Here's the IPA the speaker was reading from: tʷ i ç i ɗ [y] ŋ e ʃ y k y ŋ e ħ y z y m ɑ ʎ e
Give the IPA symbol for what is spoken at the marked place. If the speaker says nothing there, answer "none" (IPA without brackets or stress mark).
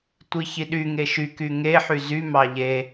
y